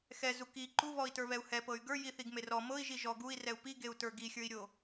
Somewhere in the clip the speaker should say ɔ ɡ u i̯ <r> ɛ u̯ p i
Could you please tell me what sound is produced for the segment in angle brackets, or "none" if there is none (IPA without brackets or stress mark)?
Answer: r